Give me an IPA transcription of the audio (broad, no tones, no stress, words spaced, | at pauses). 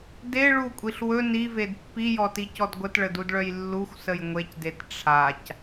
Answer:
de ɭukʷʼiɬ wɵ nived pːijɔticɔd ɡʷətɭədudɭœj lːuxʷsəj ŋʷecdet ʈ͡ʂʰac